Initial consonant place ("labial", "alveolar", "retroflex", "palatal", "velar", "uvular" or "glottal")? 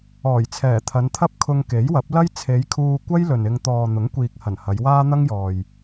palatal